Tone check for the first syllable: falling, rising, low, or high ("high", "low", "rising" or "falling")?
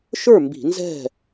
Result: falling